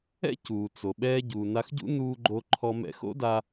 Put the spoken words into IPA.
ɛ̰˥cuː˩t͡so˩ ɓɛː˧ɟu˩na˧xɟṵ˥ nuː˧ɡ͡ǃo˧ ǃʰɔ˧mɛ̰˧ xo̰˥da˧

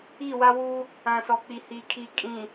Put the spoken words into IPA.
i˦˨wa˦ wuː˦ | ã˨sɔ˨k͡pi˨ hi˨kʰi˨ kʼĩ˨

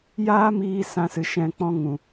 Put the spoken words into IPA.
jaː˦miː˧ sã˧sɨ˨ʃɛ̃˧ k͡pɔ̃˧ŋũ˨

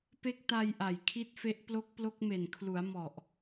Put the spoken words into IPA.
pe˦˥k̚ta˧j ʔa˨˩jkʰi˦˥t̚fe˦˥ʔ plo˦˥k̚plo˦˥k̚me˨˩nkʰlu˩˦a̯ mɔ˨˩ʔ

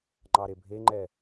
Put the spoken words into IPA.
ŋ͡ǃɑɾebʱeŋ͡ǃɛ

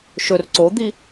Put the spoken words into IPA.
ʃɵr ǀod̪i

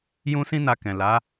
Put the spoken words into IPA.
jũ˧sĩ˧na˨ kɛ̃˨ la˨˦

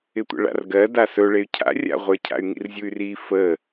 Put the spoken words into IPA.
ɪtʷə̰ɭa̰rɡɜ dasɵ ɭey̯cʰa̰ rʲa̰ʁʷə˞cʰa̰y̯ŋḭr zʲuy̯ri fə

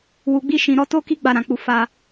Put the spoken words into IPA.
wu˨ɡ͡bi˧ʃĩ˨ɾɔ˧ to˦ki˦ ɡ͡ba˧ɾã˨k͡pu˧ fa˧

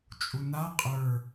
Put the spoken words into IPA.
t͡ʃʼuna qʼə˞

